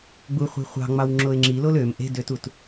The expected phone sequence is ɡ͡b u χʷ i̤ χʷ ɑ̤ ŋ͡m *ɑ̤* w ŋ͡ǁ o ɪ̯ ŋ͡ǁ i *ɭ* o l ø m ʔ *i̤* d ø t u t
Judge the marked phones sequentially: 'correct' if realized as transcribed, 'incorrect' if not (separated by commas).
incorrect, incorrect, incorrect